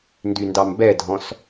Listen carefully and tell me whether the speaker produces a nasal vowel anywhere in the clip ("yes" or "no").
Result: yes